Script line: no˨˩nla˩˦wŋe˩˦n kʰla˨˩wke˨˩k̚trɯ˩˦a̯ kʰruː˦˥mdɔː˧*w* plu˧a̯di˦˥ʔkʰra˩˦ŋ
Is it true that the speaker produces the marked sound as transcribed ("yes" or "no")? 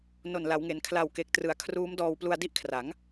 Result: yes